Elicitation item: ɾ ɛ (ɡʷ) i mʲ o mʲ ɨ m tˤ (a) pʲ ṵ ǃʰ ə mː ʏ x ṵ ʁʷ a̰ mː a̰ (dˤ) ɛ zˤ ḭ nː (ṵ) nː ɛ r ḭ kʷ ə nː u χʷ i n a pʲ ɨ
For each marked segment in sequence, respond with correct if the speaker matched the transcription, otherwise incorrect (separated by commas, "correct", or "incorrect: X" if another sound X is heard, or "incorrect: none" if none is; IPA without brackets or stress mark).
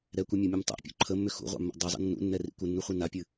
incorrect: kʷ, incorrect: a̰, correct, correct